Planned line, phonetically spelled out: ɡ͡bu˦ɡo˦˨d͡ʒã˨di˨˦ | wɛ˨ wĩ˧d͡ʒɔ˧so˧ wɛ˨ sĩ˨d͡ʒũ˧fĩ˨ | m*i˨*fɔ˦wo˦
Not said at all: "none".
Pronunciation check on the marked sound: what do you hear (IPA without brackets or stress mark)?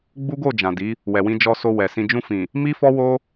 i˦